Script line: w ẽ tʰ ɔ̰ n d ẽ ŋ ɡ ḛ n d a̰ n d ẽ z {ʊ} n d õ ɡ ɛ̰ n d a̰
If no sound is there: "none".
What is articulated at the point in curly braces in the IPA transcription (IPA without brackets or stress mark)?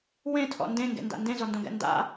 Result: ɔ